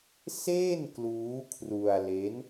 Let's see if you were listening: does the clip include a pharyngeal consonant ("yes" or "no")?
no